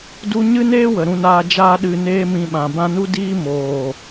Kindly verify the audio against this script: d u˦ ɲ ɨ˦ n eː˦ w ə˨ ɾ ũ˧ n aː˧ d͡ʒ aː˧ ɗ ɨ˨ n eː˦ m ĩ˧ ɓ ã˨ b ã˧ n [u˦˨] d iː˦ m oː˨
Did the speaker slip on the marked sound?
yes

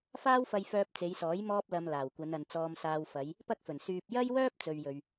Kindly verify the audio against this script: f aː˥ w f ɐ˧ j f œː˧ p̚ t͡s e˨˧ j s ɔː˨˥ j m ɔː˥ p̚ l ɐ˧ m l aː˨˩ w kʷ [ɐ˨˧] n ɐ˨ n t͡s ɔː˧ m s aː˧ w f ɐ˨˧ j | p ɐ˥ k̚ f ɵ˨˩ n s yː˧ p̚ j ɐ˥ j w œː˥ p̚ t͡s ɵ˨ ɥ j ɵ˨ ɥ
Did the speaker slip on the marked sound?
no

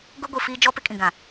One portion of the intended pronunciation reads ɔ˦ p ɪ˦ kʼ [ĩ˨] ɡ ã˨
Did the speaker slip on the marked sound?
no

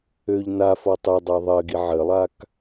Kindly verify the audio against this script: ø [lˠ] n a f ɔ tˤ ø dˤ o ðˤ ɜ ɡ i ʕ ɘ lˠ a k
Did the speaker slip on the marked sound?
yes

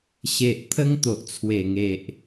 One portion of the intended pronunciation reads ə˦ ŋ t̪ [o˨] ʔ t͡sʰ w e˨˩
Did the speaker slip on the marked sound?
no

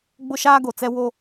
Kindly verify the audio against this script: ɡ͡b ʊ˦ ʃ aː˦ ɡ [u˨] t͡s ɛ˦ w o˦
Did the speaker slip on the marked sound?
yes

